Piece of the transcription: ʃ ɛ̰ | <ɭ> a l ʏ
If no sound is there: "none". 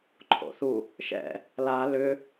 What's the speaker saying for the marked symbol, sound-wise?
l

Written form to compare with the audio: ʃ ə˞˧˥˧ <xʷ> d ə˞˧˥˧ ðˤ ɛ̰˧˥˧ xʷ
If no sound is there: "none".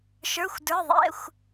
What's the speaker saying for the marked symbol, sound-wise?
xʷ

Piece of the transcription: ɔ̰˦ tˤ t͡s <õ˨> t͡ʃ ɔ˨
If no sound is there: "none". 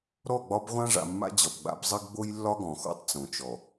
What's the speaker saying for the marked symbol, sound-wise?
õ˨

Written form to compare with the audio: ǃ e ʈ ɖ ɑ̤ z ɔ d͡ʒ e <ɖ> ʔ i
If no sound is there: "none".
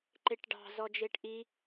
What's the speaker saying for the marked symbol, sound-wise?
ʈ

